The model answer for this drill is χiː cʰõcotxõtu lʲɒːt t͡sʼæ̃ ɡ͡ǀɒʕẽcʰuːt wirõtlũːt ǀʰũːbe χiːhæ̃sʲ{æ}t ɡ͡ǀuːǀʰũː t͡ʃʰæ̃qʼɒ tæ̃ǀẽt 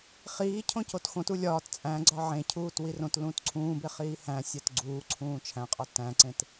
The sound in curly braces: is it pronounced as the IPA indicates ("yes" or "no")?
yes